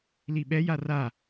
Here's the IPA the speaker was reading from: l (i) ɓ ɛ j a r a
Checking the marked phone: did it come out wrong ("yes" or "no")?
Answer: no